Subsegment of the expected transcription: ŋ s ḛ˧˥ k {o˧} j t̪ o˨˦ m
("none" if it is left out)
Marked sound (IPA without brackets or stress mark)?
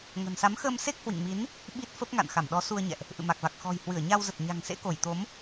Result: o˧˩